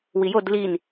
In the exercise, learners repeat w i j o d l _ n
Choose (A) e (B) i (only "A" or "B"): B